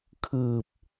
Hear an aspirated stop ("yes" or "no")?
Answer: yes